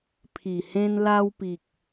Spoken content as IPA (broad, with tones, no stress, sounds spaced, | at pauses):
pʰ i˨˩ h ẽ˧ n l a˧ w p i˨ k̚